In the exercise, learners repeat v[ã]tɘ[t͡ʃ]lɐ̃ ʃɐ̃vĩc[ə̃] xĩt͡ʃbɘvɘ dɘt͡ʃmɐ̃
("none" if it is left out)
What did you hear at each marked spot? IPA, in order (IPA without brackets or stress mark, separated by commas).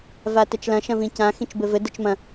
a, t͡ʃ, ã